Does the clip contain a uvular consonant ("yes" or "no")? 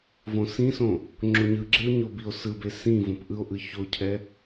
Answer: no